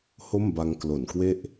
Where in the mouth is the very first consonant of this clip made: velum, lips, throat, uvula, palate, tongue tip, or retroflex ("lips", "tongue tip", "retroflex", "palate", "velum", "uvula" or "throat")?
throat